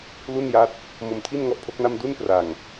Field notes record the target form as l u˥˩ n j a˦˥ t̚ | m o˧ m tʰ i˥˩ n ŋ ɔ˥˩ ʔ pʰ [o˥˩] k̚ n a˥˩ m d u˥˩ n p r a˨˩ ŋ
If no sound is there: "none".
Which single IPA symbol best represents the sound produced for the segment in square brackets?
o˦˥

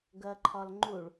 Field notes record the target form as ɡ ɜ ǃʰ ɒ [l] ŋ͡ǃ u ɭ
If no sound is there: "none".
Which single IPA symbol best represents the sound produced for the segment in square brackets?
l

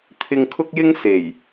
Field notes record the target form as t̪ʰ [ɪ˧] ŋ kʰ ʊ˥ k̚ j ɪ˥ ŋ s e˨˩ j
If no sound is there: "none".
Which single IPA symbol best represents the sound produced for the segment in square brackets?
ɪ˧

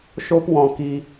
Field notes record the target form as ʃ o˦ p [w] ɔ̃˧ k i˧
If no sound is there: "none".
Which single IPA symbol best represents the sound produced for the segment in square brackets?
w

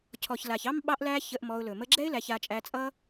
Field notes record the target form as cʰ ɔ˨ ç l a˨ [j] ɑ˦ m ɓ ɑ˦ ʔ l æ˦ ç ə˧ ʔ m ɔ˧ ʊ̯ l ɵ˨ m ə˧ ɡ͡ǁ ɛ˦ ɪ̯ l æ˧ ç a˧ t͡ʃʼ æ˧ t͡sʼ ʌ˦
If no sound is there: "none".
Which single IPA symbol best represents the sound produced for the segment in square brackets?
ç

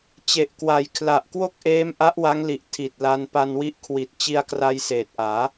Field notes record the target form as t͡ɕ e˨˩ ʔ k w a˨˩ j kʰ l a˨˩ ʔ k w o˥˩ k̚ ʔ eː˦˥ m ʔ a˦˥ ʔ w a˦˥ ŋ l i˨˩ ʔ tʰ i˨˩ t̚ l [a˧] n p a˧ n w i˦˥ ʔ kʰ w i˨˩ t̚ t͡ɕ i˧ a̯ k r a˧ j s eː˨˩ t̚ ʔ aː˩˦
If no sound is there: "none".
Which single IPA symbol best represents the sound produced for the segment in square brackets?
a˧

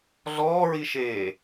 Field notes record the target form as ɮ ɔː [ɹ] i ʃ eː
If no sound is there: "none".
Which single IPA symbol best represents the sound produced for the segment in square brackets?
ɹ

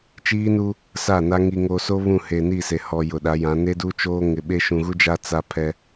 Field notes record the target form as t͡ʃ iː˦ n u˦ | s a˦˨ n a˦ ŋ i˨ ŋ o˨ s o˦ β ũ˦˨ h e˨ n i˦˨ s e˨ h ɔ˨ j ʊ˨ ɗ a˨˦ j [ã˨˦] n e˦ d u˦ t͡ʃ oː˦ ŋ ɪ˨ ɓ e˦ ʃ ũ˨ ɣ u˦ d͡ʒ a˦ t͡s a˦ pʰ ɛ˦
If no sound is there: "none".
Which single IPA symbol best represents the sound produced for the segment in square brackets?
ã˨˦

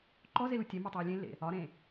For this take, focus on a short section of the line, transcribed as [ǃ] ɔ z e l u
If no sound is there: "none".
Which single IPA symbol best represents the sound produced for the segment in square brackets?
ǃ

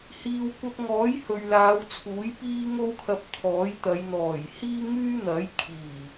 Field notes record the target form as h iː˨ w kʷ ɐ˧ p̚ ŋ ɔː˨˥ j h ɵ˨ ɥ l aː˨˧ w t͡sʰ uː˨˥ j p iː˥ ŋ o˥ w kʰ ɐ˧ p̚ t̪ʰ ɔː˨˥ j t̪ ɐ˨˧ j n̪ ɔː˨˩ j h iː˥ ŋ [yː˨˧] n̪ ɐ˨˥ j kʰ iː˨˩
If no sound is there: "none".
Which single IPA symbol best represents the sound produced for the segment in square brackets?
yː˥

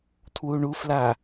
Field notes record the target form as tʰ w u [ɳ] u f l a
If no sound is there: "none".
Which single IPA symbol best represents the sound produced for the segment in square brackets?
ɳ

